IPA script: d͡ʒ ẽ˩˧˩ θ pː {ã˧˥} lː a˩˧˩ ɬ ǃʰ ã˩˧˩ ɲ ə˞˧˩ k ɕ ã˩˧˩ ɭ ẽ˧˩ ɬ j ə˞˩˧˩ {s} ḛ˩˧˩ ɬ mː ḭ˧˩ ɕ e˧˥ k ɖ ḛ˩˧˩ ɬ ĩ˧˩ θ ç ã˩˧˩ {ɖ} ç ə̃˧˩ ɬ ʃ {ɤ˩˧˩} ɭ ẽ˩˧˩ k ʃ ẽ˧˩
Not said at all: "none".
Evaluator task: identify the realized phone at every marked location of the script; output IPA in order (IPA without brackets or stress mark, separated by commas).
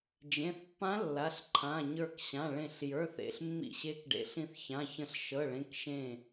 ã˧˥, θ, none, ɤ˩˧˩